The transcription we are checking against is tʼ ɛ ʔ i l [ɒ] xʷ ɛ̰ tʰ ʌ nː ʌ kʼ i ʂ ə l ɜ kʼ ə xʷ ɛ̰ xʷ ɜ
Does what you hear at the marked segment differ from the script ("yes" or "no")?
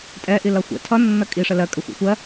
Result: yes